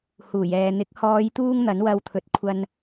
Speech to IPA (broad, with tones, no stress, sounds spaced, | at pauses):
h uː˨˩ j ɛː˨ n̪ ɪ˨˥ k̚ h ɔː˨˧ j t̪ uː˧ ŋ n̪ ɐ˨˥ n w ɐ˧ w t̪ʰ ɵ˨ t̚ kʷʰ ɐ˧ n